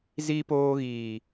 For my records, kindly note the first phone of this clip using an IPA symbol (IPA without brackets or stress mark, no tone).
z